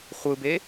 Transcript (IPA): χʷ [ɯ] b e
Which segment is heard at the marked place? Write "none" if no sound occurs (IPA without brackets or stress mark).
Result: ɯ